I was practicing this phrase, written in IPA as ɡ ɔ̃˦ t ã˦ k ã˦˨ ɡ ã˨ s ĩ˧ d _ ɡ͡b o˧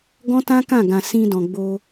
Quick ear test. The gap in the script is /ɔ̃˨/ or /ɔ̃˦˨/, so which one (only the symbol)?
ɔ̃˨